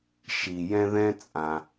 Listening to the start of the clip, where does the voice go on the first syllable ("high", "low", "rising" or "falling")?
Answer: low